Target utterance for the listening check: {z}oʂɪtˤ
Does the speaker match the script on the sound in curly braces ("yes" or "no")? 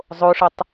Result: no